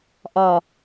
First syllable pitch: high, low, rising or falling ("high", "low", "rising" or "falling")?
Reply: low